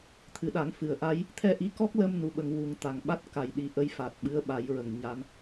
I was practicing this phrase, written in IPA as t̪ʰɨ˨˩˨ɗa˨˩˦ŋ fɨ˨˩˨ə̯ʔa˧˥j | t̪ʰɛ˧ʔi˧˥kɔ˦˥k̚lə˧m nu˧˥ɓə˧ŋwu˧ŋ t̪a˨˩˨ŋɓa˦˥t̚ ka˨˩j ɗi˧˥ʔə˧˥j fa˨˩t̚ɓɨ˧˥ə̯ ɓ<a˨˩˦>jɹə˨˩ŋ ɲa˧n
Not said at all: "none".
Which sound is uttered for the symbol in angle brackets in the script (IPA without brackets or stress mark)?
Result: a˨˩˦